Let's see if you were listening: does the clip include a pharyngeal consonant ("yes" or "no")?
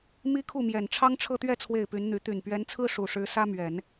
no